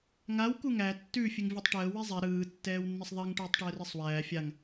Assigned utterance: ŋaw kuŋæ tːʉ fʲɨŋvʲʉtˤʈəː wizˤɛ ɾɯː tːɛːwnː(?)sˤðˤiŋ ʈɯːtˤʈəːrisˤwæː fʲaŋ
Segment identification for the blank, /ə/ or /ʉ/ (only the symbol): ə